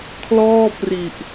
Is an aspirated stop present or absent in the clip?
present